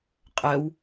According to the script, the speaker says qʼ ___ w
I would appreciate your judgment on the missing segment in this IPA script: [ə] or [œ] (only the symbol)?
œ